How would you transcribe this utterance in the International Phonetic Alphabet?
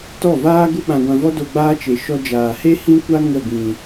t ɔ˦˨ v aː˦ ɡ u˦ ɓ ã˧ ɡʷ ã˧ v ɔ˦ d o˧ ɡ͡b aː˦ t͡ʃ e˨ ʃ ɔ˧ d͡ʒ aː˨ h e˦ h ĩ˦ kʷ a˦ ŋ ə˦˨ ɡ ĩ˨

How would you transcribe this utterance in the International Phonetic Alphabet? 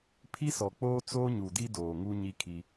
pʰ i˦ s ɔ˨ k͡p oː˦ t͡s oː˦ ɲ u˨ d i˦ d oː˨ ŋ u˦ ɲ i˦ kʰ i˦

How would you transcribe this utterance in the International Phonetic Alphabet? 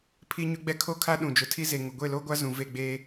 pʰ i˦ ɲ ʊ˦ ɡ͡b ɛ˦ kʰ o˦ kʰ a˦ ɗ ũ˨ d͡ʒ ʊ˨ tʰ i˦ z e˨ ŋ ʊ˨ ɡʷ e˦˨ l o˦ ɡʷ a˦ z ũ˨ v e˦˨ ɡ͡b eː˦

